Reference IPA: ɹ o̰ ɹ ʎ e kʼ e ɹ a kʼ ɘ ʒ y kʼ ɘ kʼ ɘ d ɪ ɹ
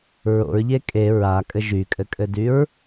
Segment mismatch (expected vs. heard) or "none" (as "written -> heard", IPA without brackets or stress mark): ɪ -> y